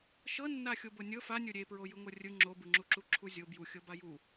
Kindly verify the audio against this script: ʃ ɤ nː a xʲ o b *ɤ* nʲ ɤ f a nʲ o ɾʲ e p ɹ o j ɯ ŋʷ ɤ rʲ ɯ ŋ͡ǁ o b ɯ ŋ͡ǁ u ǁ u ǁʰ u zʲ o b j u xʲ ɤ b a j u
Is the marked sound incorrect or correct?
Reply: correct